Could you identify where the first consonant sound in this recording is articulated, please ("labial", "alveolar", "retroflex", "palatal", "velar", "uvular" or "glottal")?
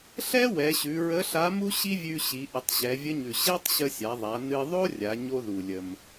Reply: alveolar